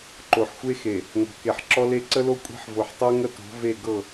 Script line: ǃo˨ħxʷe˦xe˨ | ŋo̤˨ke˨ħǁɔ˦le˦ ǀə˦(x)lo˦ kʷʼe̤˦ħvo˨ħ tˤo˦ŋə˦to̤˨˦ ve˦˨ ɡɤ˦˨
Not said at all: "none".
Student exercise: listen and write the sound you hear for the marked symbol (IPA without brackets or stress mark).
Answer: none